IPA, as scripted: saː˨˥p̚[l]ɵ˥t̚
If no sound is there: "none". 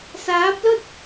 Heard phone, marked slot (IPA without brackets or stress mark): l